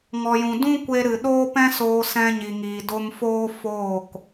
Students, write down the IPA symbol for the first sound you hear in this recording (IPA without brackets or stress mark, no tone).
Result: ŋ